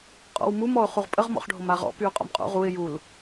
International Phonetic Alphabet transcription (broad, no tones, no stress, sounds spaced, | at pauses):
qʼ ɔ̰ w m u m ɔ ʊ̯ χ u ʁ pʼ ə ʁ m ɔ̰ χ ɖʱ o m a ʁ ɔ̰ p y ʊ̯ qʼ ɔ̰ m qʼ o̰ ʁ u ɪ̯ j u l